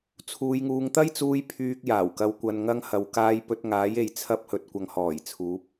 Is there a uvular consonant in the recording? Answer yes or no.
no